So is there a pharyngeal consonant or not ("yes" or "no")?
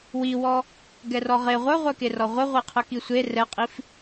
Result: no